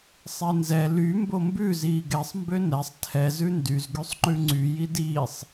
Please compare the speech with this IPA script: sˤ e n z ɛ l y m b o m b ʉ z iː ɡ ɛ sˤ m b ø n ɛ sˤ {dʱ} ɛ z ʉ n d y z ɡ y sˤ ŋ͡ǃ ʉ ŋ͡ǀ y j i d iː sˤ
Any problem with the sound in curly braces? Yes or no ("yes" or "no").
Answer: yes